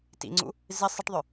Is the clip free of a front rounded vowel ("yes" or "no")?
no